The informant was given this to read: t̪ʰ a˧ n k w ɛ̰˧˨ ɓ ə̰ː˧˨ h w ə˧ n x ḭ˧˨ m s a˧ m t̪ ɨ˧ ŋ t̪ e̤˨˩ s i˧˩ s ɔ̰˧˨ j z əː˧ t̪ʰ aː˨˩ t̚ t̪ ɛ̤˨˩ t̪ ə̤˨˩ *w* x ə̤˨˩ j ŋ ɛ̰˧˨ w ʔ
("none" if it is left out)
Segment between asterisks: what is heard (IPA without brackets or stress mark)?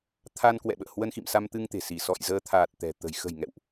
j